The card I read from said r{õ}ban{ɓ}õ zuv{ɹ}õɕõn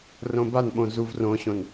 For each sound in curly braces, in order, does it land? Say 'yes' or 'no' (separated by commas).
yes, yes, no